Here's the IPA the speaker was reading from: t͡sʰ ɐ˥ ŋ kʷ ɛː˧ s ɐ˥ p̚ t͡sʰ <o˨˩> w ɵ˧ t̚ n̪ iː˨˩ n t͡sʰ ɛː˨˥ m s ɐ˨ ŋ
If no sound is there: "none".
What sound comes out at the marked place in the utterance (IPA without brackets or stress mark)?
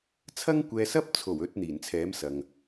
o˨˩